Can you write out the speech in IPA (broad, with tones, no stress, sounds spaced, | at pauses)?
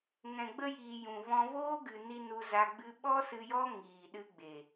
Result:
ŋ ɛ̃˨ ɡ͡b ə˧ j iː˨ j ũ˨ v ɔ̃˧ v oː˦ ɡ ɨ˨ n i˧ n u˧ z a˧ ɡ͡b ɨ˦ ɓ ɔ˦ s ɨ˧ j ɔ˦ ŋ iː˨ ɗ ɨ˧ ɡ͡b e˨